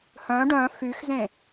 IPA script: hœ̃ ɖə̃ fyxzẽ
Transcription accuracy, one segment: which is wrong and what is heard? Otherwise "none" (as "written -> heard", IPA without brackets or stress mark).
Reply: ə̃ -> œ̃